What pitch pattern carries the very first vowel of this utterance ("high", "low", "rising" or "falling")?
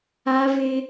high